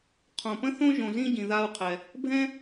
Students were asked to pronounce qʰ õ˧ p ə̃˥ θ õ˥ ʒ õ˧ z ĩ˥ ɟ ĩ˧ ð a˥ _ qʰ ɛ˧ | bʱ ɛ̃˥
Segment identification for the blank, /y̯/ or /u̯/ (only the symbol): u̯